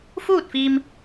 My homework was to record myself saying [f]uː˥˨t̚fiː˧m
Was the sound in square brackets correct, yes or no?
yes